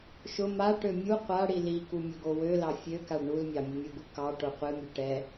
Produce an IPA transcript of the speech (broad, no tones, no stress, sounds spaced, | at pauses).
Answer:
ʃ ʊ m a ʈ ø mʲ u qʷ a ɽ i l i k u mʲ ʊ ɡ o w ø l ɑ fʲ ø k a ɖ ɳ u l mʲ ɑ mʲ ʊ mʲ u ɡ u k ɑ ʈ o qʷ ɨ mʲ ø ʈ ɛ